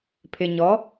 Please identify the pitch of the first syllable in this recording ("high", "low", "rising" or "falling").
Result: low